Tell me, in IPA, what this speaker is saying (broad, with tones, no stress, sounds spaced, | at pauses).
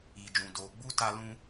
i˨ d͡ʒ ũ˨ d oː˨ ɡ͡b u˦ t a˧ l ũ˧